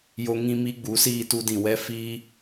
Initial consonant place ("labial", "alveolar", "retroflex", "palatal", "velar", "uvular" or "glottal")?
palatal